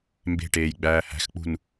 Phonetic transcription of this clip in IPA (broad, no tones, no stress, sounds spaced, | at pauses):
m b e̤ ʈ eː j ɡ͡b æː h æ̤ x k͡p ṳ n